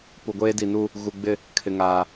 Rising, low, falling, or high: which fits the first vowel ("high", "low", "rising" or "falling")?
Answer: low